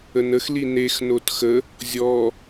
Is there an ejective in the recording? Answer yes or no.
no